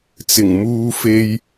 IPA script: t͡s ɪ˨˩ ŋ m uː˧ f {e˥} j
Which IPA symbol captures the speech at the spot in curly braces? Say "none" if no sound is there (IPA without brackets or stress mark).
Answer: e˥